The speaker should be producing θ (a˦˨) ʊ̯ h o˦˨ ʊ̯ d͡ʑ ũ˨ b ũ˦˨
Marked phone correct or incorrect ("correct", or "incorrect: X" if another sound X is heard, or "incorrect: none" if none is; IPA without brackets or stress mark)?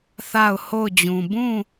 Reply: correct